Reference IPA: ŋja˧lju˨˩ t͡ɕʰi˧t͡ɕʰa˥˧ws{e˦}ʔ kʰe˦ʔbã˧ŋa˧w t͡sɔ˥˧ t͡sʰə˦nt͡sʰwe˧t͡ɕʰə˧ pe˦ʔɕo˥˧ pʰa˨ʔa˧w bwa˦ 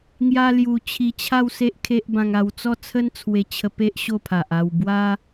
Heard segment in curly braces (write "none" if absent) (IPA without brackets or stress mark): e˦